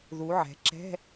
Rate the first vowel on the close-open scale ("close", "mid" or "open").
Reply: close